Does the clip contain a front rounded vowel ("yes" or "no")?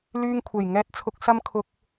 yes